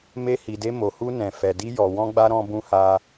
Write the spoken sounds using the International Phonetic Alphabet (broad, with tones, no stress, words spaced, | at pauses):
me˦hi˧de˦ mo˧hu˦nɛ̃˧ fɛ˧di˦jɔ˧ wɔ̃˦ɡ͡ba˦ ɾɔ̃˦bũ˦ha˦